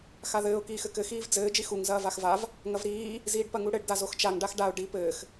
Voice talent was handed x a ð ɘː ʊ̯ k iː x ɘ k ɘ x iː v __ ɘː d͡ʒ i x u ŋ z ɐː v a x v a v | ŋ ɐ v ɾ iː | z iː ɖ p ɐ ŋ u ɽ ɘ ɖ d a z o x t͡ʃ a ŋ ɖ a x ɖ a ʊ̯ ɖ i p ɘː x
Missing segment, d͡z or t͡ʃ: d͡z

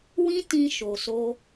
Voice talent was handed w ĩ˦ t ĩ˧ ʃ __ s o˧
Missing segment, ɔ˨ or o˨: o˨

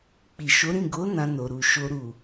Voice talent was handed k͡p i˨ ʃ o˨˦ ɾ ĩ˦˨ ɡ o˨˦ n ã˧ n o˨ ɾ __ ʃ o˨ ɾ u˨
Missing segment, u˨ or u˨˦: u˨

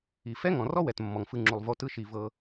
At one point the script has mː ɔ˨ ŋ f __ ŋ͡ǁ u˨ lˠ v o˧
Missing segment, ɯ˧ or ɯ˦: ɯ˧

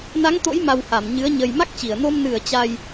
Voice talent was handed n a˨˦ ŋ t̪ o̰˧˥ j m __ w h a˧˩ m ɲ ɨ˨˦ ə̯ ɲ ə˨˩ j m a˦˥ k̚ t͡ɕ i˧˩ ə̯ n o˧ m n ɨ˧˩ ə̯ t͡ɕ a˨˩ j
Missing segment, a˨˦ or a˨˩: a˨˩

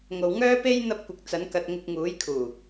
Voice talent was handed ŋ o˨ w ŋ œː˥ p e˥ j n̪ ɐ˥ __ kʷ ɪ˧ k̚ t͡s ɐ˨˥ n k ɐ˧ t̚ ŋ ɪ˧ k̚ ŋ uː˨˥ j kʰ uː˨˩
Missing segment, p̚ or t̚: p̚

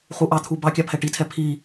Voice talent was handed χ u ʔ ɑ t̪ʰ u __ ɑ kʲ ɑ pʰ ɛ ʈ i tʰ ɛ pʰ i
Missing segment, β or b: b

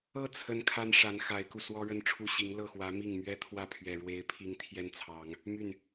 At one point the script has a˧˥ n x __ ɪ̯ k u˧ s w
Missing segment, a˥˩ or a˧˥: a˧˥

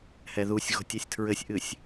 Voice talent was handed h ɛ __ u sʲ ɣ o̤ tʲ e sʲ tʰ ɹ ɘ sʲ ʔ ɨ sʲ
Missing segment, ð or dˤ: ð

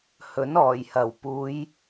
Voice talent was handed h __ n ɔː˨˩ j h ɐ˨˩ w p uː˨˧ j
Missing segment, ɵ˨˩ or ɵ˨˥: ɵ˨˥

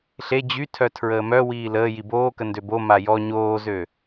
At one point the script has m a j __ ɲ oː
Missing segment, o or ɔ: ɔ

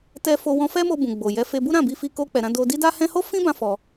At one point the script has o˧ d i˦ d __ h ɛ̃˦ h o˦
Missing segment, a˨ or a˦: a˦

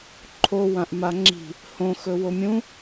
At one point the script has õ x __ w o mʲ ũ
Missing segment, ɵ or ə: ɵ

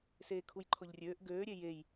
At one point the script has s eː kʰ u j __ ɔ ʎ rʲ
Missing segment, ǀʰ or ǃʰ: ǃʰ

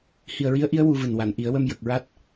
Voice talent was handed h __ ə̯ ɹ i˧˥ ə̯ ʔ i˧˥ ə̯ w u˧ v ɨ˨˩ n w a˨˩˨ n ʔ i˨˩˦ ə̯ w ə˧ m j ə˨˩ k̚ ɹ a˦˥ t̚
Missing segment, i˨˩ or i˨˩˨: i˨˩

